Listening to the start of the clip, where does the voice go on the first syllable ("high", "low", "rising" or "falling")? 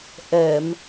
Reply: low